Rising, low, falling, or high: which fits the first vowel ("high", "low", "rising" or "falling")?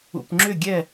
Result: low